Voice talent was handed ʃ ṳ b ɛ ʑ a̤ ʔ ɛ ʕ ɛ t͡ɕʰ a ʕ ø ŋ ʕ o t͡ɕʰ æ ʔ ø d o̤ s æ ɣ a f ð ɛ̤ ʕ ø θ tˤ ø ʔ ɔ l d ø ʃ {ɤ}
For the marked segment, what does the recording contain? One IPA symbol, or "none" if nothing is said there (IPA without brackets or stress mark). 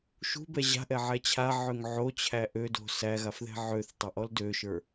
ə˞